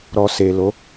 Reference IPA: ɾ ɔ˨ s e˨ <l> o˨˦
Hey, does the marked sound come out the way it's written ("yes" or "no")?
yes